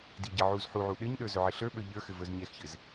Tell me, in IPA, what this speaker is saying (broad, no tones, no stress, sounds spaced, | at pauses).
d i ɟ ɘ ʕ u z ħ u ʕ u ɗ ɘ ɲ ɗ ə˞ z ɵ ʕ ɘ ɬ ə˞ ɓ ə˞ ʎ ə˞ x ɘ v ə˞ z ɲ ɛ x ç ɘ z